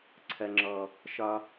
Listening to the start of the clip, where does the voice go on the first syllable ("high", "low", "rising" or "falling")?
low